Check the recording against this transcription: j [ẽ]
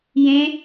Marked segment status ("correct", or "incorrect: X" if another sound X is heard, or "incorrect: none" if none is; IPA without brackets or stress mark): correct